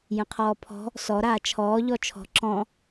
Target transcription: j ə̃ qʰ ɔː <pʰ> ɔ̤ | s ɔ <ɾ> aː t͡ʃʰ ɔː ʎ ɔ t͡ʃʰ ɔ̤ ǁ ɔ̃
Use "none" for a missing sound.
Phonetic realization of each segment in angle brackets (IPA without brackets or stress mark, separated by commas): pʰ, ɾ